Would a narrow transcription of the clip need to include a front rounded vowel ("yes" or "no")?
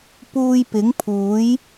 no